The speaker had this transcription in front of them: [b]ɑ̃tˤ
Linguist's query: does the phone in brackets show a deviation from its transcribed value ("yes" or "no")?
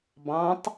no